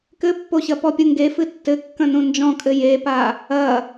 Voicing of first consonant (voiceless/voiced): voiceless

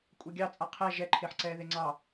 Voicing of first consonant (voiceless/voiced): voiceless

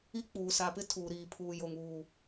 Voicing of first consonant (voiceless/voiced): voiceless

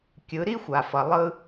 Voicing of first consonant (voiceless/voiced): voiceless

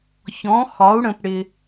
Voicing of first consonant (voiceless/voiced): voiceless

